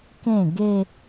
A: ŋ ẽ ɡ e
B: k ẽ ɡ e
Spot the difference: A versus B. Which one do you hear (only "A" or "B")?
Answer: B